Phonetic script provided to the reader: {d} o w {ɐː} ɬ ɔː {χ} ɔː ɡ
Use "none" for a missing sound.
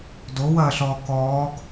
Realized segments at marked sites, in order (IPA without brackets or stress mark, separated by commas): d, ɐː, k